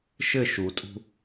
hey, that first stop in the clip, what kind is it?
ejective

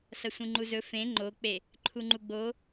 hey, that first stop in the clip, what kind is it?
click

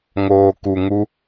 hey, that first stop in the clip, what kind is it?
plain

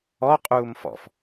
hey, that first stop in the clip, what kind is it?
ejective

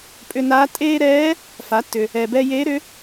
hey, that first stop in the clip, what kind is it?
ejective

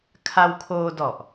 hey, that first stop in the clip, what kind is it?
aspirated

